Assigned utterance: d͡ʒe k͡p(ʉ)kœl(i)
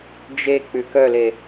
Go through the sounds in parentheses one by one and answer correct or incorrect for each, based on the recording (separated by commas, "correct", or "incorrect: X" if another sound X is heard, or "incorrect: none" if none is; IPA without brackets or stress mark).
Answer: correct, incorrect: e